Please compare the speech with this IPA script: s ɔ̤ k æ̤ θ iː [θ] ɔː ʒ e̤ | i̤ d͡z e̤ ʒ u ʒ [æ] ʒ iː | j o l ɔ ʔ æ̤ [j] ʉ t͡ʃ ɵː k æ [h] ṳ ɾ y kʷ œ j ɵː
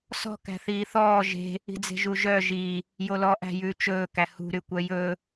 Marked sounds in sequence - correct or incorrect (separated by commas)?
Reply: correct, incorrect, correct, correct